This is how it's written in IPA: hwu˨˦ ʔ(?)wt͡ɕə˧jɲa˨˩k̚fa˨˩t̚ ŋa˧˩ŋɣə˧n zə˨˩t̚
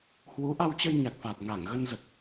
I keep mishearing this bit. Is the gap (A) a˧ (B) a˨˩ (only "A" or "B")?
A